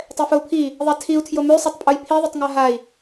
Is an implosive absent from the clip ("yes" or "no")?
yes